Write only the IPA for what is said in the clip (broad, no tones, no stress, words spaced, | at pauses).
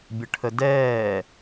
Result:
bʲəʈʰədɛː